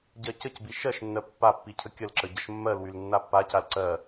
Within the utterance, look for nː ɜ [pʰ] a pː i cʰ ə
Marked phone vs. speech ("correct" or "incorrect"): incorrect